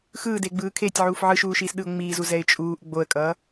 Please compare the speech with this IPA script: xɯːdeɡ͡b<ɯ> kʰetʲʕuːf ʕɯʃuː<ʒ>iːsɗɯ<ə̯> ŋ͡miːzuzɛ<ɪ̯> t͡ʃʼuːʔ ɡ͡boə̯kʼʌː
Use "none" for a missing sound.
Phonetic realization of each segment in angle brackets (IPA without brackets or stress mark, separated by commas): ɯː, ʃ, ʊ̯, ɪ̯